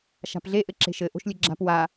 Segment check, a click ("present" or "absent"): present